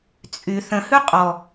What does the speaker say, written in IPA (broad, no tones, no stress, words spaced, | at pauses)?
t͡sʼy θə̃hʉ qʼɔ